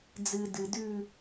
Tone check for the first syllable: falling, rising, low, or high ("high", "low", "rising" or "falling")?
low